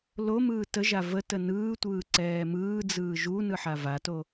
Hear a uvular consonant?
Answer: no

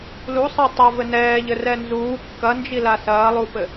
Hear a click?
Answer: no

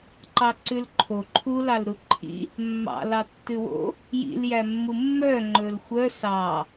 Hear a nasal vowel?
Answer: no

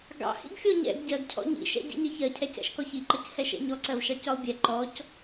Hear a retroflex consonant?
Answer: no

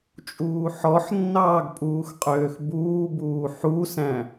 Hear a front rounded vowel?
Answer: yes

